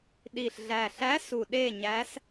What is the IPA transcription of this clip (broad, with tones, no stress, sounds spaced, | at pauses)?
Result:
ɗ i˨˩ ɬ ɮ æ˨˩ ɬ æ˧˥ s u˨˩ ɗ e˦˨ ɲ æ˧˥ s